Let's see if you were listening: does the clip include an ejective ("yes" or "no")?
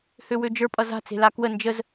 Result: yes